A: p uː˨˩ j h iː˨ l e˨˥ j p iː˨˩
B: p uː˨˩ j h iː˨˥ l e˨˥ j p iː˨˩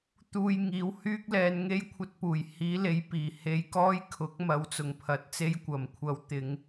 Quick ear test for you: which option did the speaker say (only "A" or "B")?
B